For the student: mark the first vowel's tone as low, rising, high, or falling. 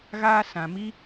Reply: high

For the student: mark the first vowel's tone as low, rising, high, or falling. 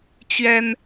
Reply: high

